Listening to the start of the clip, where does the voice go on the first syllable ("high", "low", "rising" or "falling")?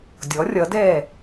rising